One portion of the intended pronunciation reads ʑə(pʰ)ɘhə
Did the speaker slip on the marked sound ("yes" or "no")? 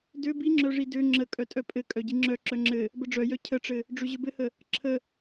yes